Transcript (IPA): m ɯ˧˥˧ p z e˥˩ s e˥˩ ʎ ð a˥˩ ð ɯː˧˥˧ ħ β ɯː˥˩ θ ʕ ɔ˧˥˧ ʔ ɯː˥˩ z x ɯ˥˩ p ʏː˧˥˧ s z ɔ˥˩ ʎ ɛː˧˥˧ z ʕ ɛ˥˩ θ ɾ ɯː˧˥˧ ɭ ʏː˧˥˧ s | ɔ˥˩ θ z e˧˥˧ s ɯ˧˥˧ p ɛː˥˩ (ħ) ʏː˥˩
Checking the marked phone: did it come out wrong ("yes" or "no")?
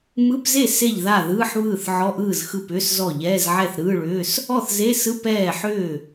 no